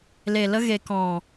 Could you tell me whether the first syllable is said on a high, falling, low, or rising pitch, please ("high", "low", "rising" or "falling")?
low